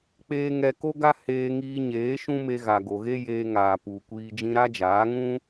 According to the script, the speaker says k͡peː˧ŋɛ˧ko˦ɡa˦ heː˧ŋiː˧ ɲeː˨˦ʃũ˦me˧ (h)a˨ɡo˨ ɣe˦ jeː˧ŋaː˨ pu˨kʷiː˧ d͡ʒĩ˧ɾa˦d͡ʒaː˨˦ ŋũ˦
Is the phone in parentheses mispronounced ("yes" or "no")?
yes